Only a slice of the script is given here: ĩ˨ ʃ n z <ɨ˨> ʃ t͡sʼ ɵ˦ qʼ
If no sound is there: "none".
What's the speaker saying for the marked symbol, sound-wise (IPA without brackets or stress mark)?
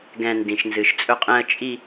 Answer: ɨ˨